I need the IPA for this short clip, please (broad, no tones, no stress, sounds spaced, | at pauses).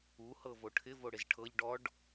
u h ɤ v o ʈʰ ɪ v o ɽ ɪ z ʈʰ ɤ ʎ ɖ ɔ ɖ